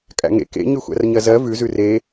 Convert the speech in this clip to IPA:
kʼ æ̰ ŋ ḛ k ḛ ɲ ʉ xʷ æ̰ r ɲ ɜ z ɜ v ʉ z ʉ r e

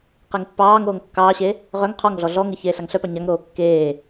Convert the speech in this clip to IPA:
q e ŋ pː ɑː ŋ oː ŋ kː ɑː ɕ e | ʁ œ ŋ qʰ ɔ ŋ ɮ ɔ ɮ ɔ ŋ ɪ ç eː ɬ a ŋ ɬ œ p ɑ ɲ a ŋ ɾ oː kː eː

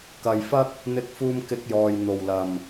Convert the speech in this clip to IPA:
k ɐ˨ j f ɐ˥ k̚ | n̪ ɪ˧ k̚ f uː˧ m k ɪ˧ k̚ j ɔː˨ j n̪ o˨˩ w l ɐ˨˩ m

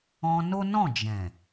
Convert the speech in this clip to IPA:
ɔ̃˧ n o˦ n ɔ̃˦˨ d͡ʒ ɛ̃˨

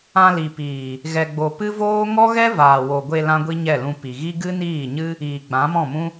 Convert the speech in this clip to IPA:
ã˧ l i˨ p iː˨ | ɣ ɛ˧ ɡ͡b o˧ p ɨ˦ v oː˦ ŋ ɔ˦ ɣ ɛ˦ v aː˨ w o˨ ɡʷ e˧ l ã˦ ɡʷ i˦ ɲ ɛ˦˨ l ũ˧ p i˨ ɣ i˦ ɡ ɨ˦ n iː˦˨ ɲ ɨ˦ | iː˨ ɡ͡b ã˨˦ m ɔ̃˦˨ m ũ˦

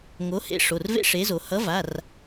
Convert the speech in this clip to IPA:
ŋ o˨˥ h ḛ˨˥ ʂ o˩˧˩ r v ḛ˥ ʂ e˨˥ z o˩˧ h ʌ˨˥ v a˩˧˩ r

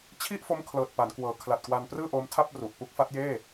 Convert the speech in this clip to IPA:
t͡ɕʰ i˥˩ ʔ f o˦˥ m kʰ l ɤː˨˩ t̚ p a˩˦ n k w ɤː˩˦ kʰ l a˨˩ t̚ k w a˧ n p r ɯː˥˩ ʔ oː˦˥ m tʰ a˥˩ p̚ r u˨˩ ʔ p u˦˥ k̚ f a˦˥ t̚ j eː˥˩

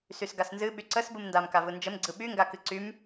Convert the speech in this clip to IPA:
s y s ɡ a s n z ɨ ɓ y ǀ ə s b ɯ m n d a m k a v ɯ n d͡ʒ ə m ɡ͡ǀ ɯ ɓ y ŋ ɡ a k ɨ ǀ y m

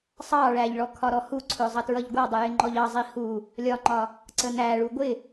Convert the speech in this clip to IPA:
sˤ ɑ ɭ æ ʎ ɭ ɔ kʰ ɒ ɾ ɔ h u ǀʰ ʊ zˤ ʌ t ɹ ʌ ʎ ɡʷ ɑ dˤ ɪ j ɪ ŋ͡ǃ ɔ ʎ ɑ zˤ i h u | lʲ ɒ ŋ͡ǃ ɒ | ǀ ə n æ ɭ u ɡʷ ɪ

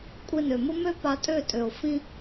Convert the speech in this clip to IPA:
kʷʼ e˧ n ø˨ m ʊ˦ m ø˦ p a˧ tʼ ø˦˨ tʼ ø˨ o̯ f ĩ˦

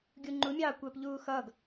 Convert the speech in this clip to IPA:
ɡʲ u ŋ͡ǃ u mʲ ɑː kʷ ɜ p ʎ uː x ʌː ɡ

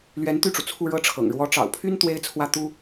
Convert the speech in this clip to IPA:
l ɥ ɛ˧˥ n t̪ y˥˩ ʈ͡ʂ u˩ t͡sʰ u˥˧ ɻ ɤ˥˩ ʈ͡ʂʰ ɤ̰˨˩ ŋ ɻ w ɔ˧˥ ʈ͡ʂ ɑ̰˨˩ ʊ̯ pʰ y˥ n t̪ w e˥ ɪ̯ t͡sʰ w ä˥˩ t̪ u˥

